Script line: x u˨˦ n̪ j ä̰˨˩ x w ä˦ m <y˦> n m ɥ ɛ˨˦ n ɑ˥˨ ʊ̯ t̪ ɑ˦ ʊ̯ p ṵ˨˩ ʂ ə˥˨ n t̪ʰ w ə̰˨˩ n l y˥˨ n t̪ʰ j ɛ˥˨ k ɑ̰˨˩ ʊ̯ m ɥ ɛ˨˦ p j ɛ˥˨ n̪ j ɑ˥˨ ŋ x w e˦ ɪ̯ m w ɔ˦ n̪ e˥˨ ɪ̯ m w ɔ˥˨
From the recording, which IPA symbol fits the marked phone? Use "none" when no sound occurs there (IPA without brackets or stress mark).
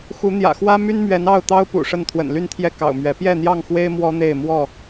y˦